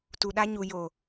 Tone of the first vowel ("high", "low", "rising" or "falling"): low